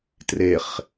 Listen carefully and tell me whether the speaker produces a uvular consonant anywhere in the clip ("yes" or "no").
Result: yes